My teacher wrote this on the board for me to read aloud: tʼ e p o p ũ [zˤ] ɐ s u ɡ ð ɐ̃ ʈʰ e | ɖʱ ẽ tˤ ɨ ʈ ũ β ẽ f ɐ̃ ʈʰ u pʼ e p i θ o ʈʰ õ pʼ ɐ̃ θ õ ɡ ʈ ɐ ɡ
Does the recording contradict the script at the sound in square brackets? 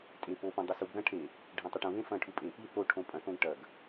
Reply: yes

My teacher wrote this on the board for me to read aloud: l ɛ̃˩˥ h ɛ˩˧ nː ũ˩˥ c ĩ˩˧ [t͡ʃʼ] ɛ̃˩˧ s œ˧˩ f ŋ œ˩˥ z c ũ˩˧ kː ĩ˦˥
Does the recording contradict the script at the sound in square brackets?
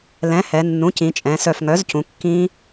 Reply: no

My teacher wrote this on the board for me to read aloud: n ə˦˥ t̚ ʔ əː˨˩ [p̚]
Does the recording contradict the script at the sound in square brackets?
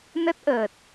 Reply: yes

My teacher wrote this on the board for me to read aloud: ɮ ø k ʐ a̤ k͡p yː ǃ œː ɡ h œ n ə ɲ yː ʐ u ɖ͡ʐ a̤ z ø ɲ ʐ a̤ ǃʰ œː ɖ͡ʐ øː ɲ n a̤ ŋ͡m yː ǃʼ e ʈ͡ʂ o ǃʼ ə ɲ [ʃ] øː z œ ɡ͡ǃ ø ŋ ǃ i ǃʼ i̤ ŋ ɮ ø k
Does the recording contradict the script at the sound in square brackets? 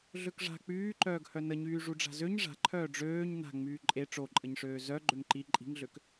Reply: yes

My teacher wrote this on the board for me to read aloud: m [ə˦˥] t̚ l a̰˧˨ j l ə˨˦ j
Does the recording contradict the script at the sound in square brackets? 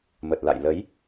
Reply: yes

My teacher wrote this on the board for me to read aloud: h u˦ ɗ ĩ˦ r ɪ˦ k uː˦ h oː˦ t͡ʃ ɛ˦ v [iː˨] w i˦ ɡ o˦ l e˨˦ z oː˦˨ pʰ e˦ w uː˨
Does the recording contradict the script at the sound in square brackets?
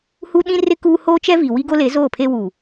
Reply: yes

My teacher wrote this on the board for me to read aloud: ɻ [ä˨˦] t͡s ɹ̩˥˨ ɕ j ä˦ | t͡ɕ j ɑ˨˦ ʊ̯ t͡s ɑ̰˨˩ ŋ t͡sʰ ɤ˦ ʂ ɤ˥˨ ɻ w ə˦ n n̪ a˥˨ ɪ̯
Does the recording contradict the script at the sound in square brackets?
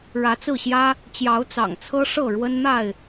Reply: no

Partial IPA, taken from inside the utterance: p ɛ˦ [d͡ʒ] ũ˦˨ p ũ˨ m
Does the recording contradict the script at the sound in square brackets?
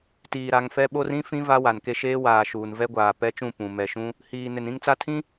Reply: yes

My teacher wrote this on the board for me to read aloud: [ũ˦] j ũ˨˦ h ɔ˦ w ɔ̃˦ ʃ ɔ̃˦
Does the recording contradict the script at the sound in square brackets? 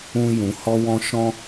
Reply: no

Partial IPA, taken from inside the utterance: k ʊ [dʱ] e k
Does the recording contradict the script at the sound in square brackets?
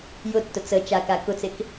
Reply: yes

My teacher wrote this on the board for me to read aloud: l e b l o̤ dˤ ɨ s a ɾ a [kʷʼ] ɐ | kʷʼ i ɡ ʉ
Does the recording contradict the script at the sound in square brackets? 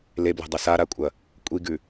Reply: no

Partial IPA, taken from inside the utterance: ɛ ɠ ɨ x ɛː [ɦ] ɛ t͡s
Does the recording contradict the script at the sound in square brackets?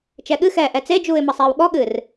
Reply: yes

